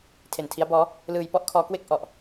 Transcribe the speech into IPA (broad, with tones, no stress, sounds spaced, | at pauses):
tʰ e˨˩ n tʰ i˦˥ a̯ b ɔː˦˥ | l ɯː˧ j p ɔ˥˩ ʔ kʰ ɔː˦˥ k w e˥˩ k̚ ʔ ɔ˨˩ ʔ